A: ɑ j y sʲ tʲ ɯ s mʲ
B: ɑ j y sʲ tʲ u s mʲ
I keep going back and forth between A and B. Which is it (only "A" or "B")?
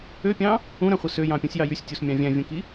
B